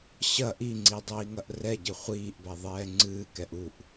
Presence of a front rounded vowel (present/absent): absent